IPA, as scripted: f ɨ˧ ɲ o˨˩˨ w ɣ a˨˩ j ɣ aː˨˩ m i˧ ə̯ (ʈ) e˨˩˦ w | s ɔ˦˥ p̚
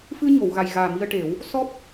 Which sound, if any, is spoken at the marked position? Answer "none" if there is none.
ʈ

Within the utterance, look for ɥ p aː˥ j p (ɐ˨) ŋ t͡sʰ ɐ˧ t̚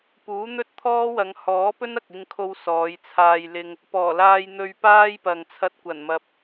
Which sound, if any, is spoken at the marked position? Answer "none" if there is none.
ɐ˨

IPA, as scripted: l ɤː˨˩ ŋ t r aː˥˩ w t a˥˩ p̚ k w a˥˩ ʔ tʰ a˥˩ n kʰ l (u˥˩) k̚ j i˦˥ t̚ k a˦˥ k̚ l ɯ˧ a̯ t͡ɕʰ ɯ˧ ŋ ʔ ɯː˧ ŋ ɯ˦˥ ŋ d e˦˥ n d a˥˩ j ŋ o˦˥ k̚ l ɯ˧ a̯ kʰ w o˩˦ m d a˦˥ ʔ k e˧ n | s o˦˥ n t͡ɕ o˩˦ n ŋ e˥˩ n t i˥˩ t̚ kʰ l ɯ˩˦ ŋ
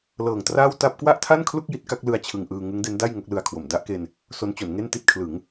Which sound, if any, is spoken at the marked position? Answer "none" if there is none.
u˥˩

